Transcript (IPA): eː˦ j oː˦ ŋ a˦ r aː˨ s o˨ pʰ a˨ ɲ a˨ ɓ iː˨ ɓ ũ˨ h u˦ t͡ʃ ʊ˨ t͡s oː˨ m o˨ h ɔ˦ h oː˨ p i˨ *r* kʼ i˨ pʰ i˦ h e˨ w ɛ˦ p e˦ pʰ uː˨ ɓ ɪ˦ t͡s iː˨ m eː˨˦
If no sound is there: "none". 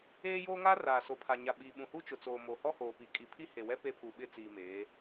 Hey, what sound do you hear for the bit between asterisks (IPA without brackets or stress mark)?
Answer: none